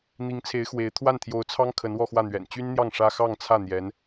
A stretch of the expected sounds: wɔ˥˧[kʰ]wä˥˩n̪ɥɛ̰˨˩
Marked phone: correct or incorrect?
incorrect